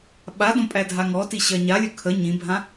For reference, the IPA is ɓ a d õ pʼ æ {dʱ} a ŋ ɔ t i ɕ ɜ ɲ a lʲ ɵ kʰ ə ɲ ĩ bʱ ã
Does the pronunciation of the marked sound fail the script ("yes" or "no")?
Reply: no